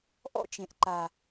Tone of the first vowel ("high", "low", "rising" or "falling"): high